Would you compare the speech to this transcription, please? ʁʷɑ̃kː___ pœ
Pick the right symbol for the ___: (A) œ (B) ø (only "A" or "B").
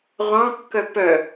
A